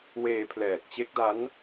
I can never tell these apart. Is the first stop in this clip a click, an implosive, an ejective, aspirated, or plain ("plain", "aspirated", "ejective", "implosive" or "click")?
aspirated